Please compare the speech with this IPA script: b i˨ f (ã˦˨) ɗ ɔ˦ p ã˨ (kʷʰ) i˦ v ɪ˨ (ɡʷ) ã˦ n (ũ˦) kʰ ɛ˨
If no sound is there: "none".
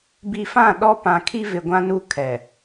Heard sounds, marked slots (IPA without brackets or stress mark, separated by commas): ã˦˨, kʰ, ɡʷ, u˦